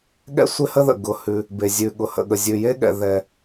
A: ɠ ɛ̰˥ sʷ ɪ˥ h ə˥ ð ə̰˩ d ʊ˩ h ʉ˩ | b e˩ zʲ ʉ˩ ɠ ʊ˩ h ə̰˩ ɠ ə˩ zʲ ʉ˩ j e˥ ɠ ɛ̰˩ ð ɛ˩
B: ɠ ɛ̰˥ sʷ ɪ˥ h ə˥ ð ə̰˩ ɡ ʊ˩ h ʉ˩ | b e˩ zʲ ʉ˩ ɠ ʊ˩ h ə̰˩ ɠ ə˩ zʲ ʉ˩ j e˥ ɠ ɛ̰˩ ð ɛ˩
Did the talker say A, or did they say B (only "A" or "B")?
B